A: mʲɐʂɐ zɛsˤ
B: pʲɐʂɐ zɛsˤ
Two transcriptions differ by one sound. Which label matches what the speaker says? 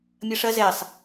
A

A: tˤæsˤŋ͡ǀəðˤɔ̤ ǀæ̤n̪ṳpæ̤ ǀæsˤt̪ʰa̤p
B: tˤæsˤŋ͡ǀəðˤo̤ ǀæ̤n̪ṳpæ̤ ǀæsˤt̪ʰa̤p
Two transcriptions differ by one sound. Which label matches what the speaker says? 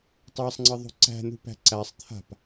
B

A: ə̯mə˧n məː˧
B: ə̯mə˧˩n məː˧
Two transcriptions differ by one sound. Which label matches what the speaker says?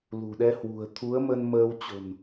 A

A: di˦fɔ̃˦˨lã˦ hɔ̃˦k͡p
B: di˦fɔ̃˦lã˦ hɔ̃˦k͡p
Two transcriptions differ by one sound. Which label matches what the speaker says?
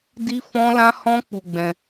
B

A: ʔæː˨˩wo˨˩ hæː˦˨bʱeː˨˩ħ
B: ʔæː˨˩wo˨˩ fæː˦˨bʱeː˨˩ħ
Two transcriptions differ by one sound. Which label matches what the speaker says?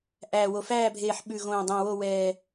B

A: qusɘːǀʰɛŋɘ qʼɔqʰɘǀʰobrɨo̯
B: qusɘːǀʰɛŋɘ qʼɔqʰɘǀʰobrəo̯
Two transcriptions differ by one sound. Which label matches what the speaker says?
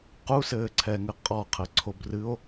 A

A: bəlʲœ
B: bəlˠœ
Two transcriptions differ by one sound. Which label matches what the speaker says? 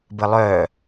B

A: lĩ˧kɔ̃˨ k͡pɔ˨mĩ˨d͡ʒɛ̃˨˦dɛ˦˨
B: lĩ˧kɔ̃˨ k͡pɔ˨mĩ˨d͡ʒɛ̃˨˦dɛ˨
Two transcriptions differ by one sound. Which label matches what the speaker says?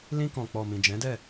A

